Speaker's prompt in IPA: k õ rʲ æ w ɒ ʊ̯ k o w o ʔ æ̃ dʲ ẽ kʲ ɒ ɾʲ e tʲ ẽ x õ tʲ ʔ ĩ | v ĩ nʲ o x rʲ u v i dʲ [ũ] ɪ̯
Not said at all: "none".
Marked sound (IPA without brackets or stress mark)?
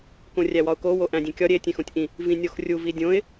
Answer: õ